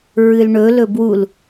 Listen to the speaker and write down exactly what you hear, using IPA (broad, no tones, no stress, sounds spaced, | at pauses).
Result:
ɹ ɨ l ɳ ɵ l ɵ b w u l